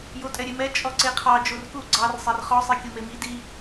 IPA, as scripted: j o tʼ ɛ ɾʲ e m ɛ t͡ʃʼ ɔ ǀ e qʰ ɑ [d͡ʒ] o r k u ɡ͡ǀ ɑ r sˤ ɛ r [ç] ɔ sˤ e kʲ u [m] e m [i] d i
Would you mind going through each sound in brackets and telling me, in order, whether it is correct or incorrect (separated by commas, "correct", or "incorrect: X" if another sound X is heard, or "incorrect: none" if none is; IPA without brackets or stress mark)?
correct, incorrect: χ, correct, correct